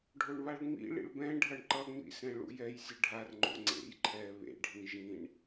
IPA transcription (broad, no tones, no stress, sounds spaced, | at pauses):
ɖʱ o ɳ β a ɭ ŋ͡m ḭ ɭ ḭ ɭ b ɛ̃ ɖʱ ʌ ɳ ǃ ʌ ŋ͡m ḭ s ɛ̃ ɭ ṵ j ɛ j sʲ ɯ ɖʱ a r ŋ͡ǃ o̰ ŋ͡ǀ ḛ j ǃʰ ɛ β ḛ ɖʱ ĩ ʒ ĩ ɳ